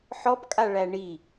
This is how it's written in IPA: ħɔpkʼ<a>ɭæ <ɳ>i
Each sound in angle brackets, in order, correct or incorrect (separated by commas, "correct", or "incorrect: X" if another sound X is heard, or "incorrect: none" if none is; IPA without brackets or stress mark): correct, correct